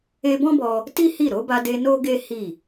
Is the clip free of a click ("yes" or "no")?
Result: yes